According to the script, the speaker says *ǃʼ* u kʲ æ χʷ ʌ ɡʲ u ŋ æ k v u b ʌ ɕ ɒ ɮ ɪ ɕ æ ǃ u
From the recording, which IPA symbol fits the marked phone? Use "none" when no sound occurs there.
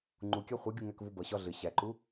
ŋ͡ǃ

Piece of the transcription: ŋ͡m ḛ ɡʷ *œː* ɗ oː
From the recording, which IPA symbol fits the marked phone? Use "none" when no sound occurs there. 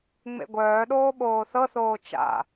œː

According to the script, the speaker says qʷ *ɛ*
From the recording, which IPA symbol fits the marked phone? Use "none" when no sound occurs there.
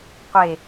e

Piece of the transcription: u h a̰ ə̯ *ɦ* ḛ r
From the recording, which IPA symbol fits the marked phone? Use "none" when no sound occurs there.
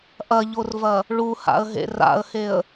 ɦ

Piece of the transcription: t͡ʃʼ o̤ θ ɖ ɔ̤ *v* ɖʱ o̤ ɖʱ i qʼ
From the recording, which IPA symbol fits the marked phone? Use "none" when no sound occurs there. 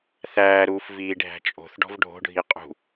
v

